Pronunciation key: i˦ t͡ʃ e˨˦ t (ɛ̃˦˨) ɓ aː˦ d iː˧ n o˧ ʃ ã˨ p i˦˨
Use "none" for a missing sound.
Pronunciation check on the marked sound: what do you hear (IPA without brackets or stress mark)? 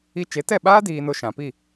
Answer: ɛ˦˨